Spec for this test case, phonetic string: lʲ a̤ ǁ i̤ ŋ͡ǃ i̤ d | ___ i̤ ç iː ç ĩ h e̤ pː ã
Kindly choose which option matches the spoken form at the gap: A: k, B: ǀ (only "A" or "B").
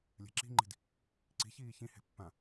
B